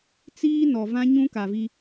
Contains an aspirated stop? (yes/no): no